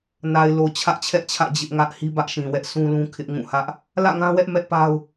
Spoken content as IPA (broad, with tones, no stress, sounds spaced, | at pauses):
n a˨ ɪ̯ l o˨ t͡ɕʰ ä˦ ʔ t͡ɕʰ ɛ˦ ʔ t͡ɕʰ ä̰˦˨ d͡ʑ ɪ˦ ʔ ŋ ä˦ ʔ h i˦ b ä˦ ʔ ʃ ĩ˨ w ɛ˦ ʔ sʰ ũ˦ l ũ˦ kʰ ɪ˦ ʔ ŋ ũ˦˨ h ä˦ ʔ | l ä̰˦˨ ŋ ã˦ w ɛ˦ ʔ m ɛ˦ ʔ p a˦ ʊ̯